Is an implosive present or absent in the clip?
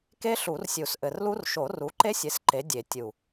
absent